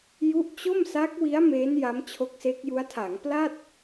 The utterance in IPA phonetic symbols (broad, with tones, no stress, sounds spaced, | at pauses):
j u˦˥ ʔ t͡ɕ o˥˩ m s a˦˥ k̚ w i˦˥ a̯ m e˦˥ n j a˦˥ m t͡ɕʰ o˦˥ k̚ s e˦˥ k̚ j u˦˥ a̯ tʰ a˩˦ ŋ p l a˥˩ t̚